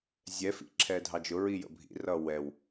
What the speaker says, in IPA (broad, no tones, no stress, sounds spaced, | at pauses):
zʲ ɛ f ḭ ǁʰ ɛ dʱ ɑ d͡ʒ ʊ ɹ i j ə̰ bʱ ḭ r ʌ w ɛ w